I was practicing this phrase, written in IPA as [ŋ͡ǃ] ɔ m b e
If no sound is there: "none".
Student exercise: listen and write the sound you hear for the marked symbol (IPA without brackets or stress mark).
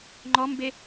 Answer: ŋ͡ǃ